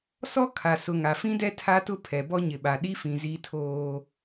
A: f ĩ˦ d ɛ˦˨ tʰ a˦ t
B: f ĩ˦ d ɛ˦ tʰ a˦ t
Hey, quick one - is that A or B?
B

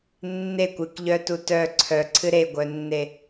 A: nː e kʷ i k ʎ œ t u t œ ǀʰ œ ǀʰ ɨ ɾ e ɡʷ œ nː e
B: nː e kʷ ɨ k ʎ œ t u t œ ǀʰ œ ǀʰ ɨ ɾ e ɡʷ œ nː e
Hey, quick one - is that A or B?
B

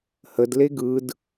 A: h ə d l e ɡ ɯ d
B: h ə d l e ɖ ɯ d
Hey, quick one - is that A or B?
A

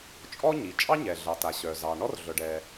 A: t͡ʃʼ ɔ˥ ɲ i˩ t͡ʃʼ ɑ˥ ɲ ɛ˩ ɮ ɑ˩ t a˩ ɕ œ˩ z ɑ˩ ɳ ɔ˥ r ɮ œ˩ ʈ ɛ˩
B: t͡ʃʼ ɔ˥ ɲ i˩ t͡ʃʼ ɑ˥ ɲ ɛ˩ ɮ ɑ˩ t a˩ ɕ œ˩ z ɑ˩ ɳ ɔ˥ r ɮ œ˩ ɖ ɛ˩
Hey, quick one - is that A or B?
B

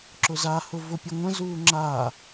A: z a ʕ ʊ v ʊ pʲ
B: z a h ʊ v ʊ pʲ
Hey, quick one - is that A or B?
B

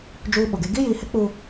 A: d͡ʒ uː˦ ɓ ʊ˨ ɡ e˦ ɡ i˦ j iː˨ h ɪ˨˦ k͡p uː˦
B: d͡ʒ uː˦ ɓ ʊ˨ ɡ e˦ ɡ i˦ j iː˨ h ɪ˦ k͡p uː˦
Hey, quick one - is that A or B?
B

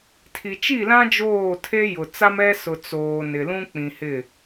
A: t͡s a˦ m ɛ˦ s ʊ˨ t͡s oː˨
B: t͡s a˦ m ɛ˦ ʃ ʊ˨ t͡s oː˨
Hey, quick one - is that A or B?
A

